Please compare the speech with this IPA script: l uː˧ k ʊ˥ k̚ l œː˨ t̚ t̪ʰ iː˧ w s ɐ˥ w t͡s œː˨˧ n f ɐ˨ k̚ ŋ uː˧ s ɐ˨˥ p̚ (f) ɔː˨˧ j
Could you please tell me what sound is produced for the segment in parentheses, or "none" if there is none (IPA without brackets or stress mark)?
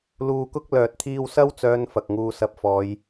f